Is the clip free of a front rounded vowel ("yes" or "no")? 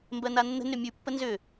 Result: no